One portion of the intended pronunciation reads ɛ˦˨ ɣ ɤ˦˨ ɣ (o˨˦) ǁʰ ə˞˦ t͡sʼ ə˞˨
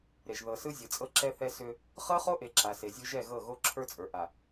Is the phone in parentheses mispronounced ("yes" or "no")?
yes